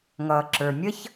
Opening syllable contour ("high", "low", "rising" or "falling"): low